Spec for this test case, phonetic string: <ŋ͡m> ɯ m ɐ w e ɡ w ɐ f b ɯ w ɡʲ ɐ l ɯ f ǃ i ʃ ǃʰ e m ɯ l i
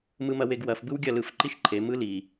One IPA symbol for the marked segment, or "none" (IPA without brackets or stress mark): m